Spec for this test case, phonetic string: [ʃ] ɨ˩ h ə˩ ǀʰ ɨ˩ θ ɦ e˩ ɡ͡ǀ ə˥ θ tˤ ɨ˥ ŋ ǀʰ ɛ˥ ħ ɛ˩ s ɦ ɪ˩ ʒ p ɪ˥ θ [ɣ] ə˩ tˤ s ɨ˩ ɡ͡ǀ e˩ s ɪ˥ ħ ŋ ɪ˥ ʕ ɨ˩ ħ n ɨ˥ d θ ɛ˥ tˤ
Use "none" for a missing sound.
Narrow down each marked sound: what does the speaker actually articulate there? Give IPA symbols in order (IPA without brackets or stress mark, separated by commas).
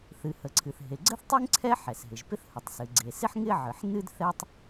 θ, h